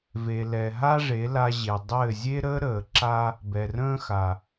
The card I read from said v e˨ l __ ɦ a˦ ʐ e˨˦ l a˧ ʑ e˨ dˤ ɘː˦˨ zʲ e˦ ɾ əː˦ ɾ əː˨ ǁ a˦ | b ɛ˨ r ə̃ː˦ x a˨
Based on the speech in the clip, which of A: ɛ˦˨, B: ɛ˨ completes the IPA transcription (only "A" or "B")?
B